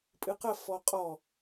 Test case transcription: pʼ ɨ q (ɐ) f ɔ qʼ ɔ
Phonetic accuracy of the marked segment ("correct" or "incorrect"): correct